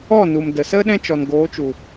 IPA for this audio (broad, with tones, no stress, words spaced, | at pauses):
ɔ˦˨nu˨mdə˨sə˦ ɗɛ̃˦t͡ʃɔ˨nɡoː˨˦t͡ʃu˨